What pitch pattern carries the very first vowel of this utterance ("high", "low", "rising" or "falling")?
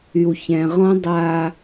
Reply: low